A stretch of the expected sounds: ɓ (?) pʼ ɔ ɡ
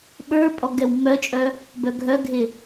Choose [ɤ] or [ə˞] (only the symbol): ə˞